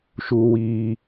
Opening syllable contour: low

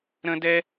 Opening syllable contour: high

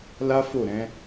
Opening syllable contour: high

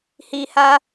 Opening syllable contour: low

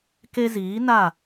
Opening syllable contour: high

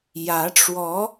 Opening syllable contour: rising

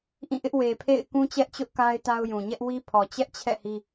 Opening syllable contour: falling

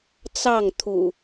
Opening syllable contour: falling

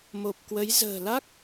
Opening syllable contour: low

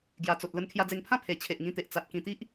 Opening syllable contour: low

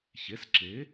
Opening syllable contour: rising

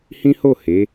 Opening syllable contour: high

